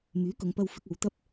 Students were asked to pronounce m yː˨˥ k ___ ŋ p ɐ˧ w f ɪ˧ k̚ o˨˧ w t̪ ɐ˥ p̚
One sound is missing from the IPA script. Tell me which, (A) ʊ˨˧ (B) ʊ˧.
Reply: A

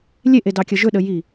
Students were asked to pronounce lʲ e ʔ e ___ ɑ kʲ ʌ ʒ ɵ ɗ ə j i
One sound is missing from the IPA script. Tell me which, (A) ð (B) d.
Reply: B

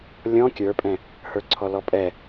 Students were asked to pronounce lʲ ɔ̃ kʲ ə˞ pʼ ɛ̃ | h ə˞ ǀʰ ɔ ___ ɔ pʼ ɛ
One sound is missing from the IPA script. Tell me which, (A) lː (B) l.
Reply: B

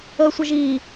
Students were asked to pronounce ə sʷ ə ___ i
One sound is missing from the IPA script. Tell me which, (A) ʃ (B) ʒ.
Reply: B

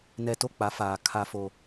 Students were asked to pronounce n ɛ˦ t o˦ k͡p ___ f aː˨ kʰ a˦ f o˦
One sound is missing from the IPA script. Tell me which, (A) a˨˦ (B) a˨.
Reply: A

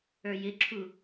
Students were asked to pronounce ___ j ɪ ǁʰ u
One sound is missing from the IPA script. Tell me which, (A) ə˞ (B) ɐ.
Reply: A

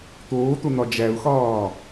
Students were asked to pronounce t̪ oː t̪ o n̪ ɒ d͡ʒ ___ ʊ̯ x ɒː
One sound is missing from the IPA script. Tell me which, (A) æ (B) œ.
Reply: A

